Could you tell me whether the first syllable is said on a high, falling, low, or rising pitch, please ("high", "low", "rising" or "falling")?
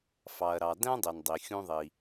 low